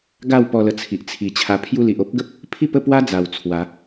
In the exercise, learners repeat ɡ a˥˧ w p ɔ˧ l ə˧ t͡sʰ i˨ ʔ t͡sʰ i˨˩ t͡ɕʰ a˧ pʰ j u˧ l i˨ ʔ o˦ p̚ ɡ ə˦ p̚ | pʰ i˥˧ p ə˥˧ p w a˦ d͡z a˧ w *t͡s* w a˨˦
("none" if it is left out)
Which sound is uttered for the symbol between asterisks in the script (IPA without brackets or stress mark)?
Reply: t͡sʰ